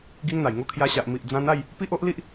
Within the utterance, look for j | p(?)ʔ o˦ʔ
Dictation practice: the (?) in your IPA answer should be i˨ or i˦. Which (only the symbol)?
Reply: i˦